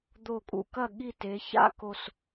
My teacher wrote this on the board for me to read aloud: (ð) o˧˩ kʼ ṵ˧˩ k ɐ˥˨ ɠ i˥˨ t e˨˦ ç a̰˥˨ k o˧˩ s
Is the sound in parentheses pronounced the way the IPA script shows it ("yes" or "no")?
no